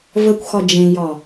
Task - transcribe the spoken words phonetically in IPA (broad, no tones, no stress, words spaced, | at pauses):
vəkʷxɒ d͡ʒẽjɒ